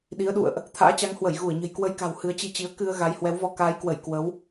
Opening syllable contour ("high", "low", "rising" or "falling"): rising